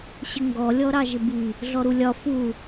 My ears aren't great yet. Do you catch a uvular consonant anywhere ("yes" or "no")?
no